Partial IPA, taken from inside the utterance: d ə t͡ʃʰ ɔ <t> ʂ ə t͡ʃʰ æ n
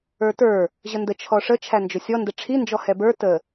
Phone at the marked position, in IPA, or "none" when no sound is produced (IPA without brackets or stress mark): none